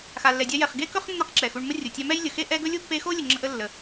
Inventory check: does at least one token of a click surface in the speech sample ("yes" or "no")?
yes